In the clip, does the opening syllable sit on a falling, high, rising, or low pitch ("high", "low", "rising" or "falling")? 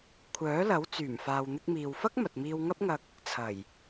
rising